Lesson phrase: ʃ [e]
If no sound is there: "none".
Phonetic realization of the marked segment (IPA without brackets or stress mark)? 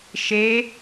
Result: e